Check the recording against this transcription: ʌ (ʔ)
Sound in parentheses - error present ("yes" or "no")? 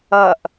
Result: no